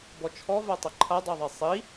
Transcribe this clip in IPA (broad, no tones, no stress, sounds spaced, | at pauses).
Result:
b ɔ t͡ʃʰ ɔ v a tˤ ɪ ǃʰ a dˤ ə˞ ðˤ e sˤ i